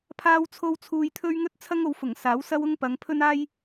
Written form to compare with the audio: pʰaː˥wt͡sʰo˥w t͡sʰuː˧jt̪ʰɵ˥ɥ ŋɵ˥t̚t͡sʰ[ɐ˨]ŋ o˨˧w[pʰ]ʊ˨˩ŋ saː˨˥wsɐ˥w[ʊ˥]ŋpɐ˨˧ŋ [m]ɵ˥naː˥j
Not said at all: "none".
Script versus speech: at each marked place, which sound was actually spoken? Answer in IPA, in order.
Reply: ɐ˥, f, ʊ˥, pʰ

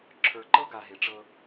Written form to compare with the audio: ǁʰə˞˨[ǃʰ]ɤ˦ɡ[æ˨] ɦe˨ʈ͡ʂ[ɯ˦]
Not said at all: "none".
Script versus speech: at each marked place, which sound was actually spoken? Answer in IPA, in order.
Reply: ǃ, a˨, ɤ˦

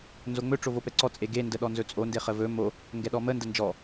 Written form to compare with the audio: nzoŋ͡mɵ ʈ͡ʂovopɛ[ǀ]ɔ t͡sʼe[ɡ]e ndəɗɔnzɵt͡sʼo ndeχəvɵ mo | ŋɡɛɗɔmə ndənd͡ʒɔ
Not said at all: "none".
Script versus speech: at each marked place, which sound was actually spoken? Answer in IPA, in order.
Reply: ǀ, ɡ

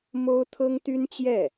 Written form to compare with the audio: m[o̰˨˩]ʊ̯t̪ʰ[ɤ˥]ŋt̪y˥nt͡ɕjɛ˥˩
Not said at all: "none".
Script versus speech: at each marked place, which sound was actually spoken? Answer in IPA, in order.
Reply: o˥, ɤ˥

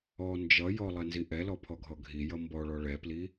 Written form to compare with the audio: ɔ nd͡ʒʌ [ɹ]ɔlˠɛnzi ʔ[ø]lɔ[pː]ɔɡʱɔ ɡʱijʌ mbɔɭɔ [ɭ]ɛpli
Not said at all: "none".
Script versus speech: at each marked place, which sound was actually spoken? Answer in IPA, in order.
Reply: j, ɛ, pʰ, ɭ

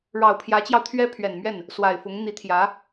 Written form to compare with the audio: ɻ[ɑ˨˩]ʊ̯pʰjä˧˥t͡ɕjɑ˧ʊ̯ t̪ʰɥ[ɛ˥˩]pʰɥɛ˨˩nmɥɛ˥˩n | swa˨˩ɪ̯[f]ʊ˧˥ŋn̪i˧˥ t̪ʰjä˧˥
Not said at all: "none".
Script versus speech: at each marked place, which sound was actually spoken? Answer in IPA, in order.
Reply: ɑ˨˩, ɛ˥, f

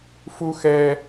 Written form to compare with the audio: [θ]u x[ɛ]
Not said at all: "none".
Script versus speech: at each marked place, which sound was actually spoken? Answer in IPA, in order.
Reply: f, ɛ

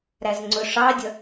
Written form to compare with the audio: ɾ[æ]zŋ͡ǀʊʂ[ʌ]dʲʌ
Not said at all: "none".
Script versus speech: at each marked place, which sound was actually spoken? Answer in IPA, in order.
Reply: æ, ɑ

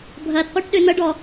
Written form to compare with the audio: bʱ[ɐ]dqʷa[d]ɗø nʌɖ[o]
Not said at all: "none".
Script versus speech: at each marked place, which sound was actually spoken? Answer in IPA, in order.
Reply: ɐ, ʈ, ɔ

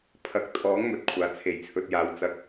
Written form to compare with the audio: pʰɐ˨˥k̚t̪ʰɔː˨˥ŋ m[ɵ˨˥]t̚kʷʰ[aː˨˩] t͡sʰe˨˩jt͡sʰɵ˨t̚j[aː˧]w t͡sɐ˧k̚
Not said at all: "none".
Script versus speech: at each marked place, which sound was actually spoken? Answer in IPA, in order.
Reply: ɵ˨, aː˨˩, aː˨˧

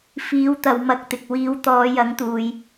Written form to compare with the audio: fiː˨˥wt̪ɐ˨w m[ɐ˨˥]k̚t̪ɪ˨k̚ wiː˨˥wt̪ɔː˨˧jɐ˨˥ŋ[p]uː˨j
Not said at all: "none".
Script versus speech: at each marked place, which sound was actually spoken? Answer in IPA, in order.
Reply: ɐ˧, t̪

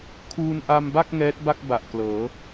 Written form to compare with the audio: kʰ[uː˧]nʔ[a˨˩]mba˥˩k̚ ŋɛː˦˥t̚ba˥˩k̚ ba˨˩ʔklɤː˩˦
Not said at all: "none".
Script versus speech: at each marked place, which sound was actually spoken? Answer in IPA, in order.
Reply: uː˧, a˧

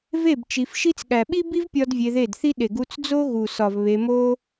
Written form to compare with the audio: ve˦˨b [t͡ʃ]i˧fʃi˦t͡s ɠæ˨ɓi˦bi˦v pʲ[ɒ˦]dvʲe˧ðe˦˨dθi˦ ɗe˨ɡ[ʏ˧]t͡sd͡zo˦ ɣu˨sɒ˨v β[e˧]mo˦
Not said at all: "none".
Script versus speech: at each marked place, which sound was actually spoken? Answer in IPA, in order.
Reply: t͡ʃ, ɒ˦, u˧, e˧

